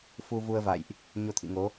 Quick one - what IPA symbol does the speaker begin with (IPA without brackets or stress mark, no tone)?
f